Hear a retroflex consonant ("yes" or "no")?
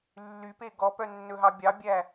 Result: no